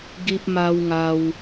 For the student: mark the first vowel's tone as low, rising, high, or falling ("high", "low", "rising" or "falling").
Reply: high